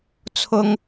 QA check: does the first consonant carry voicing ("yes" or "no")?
no